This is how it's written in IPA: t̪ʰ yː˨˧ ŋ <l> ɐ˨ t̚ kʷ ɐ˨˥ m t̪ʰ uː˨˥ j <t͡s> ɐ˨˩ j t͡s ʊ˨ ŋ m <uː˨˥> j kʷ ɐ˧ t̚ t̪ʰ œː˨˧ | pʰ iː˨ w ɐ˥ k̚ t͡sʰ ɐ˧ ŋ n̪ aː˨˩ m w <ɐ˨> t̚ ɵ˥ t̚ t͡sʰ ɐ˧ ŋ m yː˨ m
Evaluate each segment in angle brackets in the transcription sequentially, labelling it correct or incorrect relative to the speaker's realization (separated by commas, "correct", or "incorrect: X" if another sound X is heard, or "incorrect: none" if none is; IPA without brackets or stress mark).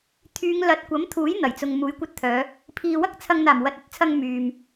correct, incorrect: n̪, correct, correct